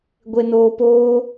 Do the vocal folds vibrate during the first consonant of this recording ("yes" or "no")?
yes